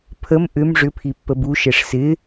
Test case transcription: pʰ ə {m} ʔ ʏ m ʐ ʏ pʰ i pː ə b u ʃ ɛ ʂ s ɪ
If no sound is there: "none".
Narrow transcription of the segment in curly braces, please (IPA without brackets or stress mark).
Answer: m